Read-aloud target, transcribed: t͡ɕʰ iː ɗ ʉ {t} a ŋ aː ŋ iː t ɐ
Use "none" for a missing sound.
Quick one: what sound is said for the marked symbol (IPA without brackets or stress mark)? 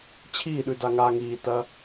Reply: d